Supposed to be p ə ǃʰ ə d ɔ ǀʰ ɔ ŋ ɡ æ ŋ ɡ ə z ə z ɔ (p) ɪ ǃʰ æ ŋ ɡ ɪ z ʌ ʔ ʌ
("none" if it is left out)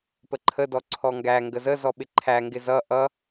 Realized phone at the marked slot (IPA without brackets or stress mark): ɓ